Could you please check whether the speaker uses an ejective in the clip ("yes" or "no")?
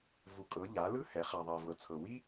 yes